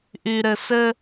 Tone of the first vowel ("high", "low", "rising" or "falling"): low